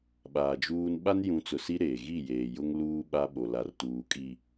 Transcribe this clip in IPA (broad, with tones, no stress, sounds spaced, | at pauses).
ɓ aː˨ d͡ʒ uː˦ n ɓ a˦ n j ũ˨˦ t͡s ʊ˨ s i˦ ɾ eː˨ ɣ i˦˨ j eː˨ j ʊ˦ ŋ l uː˦ ɓ a˦ ɓ o˨ l a˨ r t uː˨ kʼ i˨